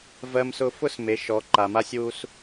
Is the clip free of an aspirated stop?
yes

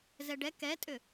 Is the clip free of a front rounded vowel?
no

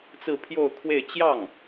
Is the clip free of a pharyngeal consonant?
yes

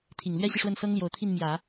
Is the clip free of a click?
yes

